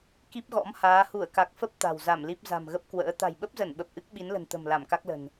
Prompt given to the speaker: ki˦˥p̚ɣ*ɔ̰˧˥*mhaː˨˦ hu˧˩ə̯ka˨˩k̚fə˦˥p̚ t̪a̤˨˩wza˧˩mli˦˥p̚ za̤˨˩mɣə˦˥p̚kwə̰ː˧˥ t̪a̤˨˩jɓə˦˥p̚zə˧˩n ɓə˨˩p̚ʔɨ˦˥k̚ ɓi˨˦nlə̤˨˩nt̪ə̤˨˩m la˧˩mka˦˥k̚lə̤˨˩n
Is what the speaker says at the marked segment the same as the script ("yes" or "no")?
yes